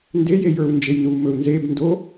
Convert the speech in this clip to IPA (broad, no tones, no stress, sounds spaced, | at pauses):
n d e j e j ə˞ u̯ n d͡ʒ e j n u m ɵ u̯ n z e b n d o